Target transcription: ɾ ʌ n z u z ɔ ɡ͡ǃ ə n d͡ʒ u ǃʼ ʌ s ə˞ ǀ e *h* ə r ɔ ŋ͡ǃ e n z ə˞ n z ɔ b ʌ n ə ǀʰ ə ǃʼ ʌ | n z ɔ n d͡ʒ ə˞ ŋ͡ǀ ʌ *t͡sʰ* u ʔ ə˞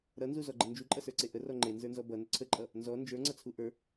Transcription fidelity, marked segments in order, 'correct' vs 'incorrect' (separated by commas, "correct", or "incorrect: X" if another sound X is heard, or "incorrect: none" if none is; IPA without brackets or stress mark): incorrect: ʔ, correct